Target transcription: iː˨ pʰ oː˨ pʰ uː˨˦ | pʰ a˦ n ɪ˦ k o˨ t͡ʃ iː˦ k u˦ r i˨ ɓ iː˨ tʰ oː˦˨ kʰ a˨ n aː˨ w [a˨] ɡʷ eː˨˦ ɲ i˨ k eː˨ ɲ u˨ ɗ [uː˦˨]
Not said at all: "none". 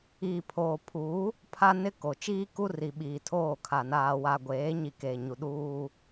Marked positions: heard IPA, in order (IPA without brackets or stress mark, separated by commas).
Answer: a˨, uː˦